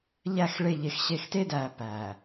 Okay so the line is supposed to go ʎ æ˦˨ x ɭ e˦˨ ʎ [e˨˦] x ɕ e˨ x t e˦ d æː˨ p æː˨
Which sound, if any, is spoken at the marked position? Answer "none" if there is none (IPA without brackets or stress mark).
e˨